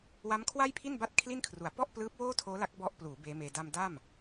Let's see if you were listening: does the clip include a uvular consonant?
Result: no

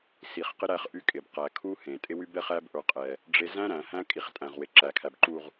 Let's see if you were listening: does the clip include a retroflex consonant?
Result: yes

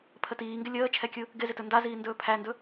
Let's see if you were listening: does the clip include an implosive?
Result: no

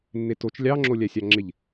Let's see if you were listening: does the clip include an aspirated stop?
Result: no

